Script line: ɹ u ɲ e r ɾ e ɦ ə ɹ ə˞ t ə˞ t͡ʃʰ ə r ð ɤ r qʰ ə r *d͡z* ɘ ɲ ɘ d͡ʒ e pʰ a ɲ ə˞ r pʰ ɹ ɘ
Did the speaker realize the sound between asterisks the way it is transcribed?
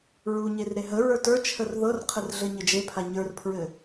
no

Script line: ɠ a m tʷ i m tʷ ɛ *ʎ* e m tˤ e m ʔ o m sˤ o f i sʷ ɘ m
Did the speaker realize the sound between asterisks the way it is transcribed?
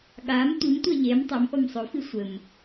yes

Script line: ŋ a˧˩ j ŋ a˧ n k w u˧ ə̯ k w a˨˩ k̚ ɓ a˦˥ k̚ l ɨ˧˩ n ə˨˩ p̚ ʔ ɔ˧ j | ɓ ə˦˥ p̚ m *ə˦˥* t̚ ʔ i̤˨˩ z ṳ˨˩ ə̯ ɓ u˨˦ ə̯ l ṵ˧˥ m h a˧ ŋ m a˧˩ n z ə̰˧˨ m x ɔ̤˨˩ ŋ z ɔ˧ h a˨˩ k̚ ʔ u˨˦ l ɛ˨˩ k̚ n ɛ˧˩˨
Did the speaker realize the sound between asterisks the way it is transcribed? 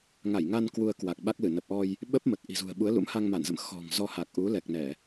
no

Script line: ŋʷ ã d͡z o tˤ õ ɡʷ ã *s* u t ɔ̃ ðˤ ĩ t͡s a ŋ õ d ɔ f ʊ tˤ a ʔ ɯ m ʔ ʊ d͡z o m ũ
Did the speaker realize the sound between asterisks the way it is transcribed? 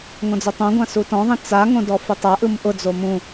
yes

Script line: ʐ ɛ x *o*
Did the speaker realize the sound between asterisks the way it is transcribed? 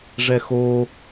yes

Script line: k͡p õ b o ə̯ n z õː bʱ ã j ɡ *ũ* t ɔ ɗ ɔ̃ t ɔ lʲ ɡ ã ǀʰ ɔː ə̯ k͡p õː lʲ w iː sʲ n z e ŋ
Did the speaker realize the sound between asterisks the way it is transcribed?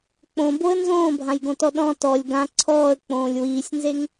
no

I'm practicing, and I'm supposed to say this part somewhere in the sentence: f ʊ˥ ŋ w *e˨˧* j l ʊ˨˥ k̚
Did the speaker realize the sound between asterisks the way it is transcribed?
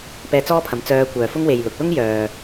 no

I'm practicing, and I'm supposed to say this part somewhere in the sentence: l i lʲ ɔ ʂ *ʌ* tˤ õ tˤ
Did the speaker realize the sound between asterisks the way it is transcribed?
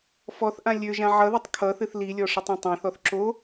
yes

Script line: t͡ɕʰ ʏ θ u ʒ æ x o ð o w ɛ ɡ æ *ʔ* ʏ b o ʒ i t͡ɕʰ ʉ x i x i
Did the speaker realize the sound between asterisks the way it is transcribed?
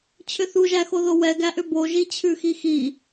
yes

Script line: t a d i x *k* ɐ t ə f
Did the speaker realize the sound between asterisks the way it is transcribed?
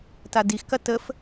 yes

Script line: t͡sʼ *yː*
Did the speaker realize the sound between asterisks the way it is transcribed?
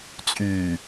yes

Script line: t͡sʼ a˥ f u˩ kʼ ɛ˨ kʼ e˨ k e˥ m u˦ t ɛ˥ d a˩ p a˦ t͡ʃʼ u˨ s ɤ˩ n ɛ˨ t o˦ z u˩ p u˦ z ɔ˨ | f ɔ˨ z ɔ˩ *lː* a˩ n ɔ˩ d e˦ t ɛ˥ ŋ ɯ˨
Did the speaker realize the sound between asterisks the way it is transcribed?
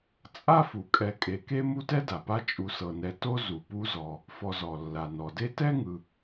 yes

